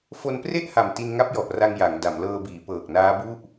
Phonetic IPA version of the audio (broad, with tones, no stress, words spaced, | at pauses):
fo˧npre˥˩ʔha˨˩m ti˧nŋa˦˥p̚jɔ˨˩ʔra˧ŋ ja˩˦ŋda˩˦mlɤː˧biː˩˦ pɤː˨˩k̚ naː˦˥bu˥˩ʔ